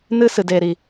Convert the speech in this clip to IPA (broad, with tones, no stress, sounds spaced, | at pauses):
n ɨ˧ s ɨ˨ d eː˨ ɾ i˨